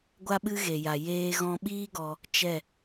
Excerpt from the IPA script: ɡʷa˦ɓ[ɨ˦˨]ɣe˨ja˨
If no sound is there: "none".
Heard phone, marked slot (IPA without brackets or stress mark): ɨ˦